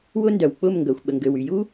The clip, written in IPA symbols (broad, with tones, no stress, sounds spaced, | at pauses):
w ʊ˦ n d œ˨ w k͡p ʊ˦˨ m ŋ ɡ œ˨ xʷ ɓ ə˨ ŋ ɡ ø˨ w y˨ j u˦